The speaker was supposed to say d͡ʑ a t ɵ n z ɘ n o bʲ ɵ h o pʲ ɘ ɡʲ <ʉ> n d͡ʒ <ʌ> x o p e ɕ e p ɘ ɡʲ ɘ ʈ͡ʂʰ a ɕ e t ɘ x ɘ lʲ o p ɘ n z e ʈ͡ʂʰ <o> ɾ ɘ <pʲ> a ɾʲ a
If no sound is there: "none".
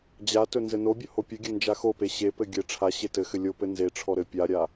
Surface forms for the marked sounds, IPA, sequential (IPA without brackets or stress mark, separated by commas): ɘ, a, ɔ, pʲ